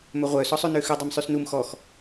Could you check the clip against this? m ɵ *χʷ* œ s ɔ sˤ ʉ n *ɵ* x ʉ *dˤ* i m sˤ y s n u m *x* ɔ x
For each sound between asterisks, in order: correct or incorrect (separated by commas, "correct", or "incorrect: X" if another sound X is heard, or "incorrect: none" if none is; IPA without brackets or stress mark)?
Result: incorrect: ʁʷ, incorrect: ø, correct, correct